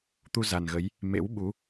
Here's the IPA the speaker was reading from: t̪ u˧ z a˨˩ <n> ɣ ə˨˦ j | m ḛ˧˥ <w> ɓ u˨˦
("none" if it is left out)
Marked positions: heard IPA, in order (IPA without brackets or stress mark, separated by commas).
n, w